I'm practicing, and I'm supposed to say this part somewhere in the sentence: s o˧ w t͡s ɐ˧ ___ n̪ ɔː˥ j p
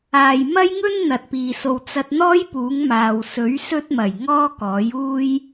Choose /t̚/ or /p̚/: t̚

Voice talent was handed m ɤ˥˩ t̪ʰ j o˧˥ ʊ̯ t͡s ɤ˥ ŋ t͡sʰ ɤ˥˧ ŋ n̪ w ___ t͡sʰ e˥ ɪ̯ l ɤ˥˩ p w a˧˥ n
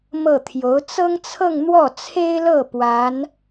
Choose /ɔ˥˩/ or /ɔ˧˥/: ɔ˥˩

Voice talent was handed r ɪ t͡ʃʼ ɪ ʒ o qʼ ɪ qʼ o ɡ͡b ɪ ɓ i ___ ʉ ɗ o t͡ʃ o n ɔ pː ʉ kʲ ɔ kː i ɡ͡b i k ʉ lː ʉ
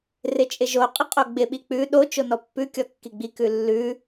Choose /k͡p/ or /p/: k͡p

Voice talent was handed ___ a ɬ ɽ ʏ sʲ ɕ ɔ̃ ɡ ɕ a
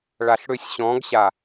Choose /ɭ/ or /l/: ɭ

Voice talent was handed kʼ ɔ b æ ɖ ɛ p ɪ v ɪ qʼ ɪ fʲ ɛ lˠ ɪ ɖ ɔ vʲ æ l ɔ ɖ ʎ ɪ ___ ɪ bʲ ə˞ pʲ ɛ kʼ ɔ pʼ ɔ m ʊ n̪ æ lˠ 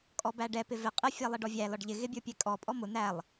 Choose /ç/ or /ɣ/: ɣ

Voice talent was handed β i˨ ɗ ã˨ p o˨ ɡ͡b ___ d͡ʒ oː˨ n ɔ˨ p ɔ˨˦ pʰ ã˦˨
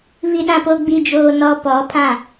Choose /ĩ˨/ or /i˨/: i˨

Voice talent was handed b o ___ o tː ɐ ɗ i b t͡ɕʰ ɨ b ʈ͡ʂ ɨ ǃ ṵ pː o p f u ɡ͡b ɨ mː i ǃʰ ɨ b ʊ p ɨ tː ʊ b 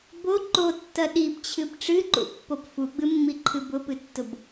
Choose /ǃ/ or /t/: ǃ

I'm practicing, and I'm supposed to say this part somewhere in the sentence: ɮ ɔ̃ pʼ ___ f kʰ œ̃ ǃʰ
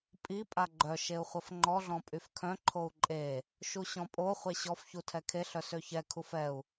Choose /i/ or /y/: y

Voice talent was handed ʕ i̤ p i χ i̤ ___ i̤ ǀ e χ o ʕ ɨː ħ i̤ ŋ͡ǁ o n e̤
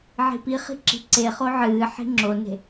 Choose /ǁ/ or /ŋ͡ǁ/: ǁ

